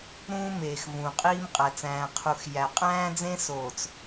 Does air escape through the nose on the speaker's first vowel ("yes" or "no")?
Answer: yes